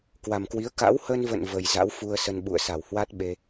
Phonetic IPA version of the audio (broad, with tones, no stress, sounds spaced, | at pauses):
k w a˨˩ m k w i˨˦ ə̯ k a̰˧˥ w h ə˧ n v ə̰˧˨ n v ə˨˩ j z a̰˧˥ w f u˧ ə̯ s ə˧ n ɓ ṵ˧˨ ə̯ s a˧˩ w h w a˦˥ t̚ ɓ e˧